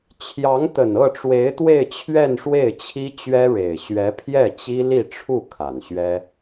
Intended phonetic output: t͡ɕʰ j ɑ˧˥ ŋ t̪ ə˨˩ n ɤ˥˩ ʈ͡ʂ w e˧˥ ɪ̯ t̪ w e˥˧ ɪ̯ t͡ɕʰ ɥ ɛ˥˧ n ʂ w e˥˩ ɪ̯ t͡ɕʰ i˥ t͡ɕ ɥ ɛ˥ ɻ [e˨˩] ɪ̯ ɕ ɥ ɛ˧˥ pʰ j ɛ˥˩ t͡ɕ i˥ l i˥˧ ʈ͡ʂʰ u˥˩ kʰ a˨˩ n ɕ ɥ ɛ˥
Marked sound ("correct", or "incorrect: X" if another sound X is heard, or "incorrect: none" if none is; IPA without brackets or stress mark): correct